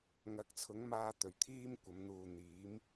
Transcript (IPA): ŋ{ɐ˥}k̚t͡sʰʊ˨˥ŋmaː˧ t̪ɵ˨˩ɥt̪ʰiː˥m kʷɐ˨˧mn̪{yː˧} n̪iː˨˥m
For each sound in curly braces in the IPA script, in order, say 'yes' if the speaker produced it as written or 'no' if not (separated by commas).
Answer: no, no